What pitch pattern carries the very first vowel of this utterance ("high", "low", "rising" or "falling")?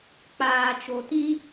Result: low